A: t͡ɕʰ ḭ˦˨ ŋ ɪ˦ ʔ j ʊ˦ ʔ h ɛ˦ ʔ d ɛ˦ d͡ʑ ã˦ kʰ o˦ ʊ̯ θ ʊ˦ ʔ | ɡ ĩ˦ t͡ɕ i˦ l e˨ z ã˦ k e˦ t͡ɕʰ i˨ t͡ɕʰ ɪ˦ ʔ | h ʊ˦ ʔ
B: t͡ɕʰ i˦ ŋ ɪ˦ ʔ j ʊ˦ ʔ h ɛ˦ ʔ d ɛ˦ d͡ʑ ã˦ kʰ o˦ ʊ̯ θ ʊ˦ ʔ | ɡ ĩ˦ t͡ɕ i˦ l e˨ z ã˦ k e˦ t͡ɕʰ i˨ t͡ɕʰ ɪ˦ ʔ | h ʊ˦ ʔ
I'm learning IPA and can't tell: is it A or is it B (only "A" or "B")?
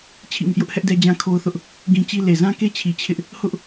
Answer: A